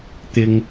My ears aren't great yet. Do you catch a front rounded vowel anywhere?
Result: no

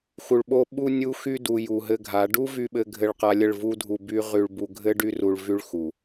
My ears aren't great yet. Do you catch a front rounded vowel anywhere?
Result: yes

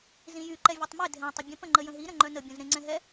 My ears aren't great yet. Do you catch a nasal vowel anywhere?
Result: yes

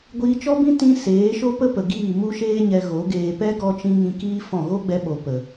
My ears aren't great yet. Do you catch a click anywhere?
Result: no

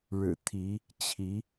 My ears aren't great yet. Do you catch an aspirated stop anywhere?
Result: yes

